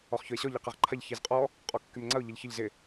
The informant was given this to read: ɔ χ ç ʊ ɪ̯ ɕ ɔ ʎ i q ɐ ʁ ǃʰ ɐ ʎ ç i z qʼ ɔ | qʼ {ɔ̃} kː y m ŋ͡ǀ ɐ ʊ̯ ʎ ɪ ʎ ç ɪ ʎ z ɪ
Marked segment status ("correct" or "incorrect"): incorrect